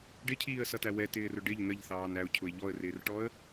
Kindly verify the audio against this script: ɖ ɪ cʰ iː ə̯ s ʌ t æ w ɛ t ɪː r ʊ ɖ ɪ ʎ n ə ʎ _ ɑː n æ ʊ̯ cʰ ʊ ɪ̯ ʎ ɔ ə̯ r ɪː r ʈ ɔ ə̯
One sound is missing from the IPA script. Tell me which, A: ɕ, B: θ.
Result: B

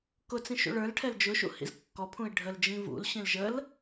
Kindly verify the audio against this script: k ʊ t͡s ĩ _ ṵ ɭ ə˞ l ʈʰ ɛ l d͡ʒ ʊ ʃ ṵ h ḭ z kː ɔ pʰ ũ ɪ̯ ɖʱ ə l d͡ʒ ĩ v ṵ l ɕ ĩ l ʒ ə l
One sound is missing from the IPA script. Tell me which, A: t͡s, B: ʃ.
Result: B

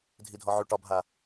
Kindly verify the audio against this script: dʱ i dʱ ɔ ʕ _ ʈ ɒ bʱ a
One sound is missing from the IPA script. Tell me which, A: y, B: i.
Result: A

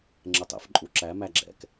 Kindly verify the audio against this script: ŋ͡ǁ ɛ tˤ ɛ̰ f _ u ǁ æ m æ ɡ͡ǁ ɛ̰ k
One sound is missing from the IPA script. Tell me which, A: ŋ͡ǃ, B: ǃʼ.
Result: B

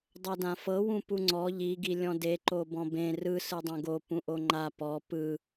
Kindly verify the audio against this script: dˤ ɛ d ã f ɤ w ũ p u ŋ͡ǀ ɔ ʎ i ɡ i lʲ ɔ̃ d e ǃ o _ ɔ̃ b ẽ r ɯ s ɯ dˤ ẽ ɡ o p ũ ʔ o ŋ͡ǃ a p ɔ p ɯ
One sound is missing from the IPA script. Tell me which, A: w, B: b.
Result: B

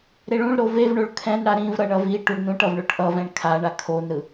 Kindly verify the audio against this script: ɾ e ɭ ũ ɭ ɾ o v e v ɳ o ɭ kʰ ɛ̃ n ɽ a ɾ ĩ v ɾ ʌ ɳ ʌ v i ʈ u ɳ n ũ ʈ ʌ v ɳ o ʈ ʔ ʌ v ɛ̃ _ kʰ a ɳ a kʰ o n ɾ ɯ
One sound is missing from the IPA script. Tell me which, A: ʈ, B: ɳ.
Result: B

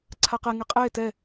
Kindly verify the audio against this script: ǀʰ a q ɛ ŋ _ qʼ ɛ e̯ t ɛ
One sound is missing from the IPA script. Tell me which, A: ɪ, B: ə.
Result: A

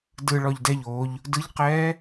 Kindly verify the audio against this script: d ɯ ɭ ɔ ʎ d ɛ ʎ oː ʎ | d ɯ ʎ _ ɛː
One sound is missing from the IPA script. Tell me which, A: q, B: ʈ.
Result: A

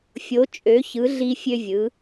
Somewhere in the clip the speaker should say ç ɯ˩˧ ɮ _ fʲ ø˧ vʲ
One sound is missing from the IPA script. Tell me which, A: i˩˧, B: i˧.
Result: B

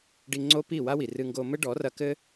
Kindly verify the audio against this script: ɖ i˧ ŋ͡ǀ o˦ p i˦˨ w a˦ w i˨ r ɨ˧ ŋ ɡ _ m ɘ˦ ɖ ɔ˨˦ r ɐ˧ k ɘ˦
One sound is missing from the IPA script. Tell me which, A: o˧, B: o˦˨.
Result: A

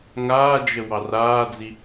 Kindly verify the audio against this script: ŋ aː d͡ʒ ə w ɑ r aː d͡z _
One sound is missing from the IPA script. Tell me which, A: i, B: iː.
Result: A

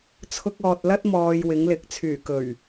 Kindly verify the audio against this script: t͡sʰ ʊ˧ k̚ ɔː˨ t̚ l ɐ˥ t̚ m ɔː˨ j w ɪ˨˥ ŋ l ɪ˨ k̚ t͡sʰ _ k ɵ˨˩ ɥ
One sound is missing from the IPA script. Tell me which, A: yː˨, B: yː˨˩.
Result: B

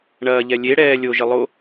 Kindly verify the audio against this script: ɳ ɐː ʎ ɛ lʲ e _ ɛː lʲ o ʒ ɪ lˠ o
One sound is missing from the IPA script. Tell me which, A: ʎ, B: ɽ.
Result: B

